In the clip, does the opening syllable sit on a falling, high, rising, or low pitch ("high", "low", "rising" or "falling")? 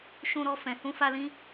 high